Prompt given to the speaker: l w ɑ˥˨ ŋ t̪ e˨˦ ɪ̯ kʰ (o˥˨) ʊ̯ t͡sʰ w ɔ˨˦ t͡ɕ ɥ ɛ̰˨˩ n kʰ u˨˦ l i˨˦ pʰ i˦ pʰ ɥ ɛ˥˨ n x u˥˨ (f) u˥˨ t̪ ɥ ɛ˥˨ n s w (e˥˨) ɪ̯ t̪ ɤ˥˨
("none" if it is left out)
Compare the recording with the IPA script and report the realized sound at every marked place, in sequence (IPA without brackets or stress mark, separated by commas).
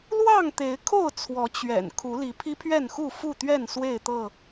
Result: o˥˨, f, e˥˨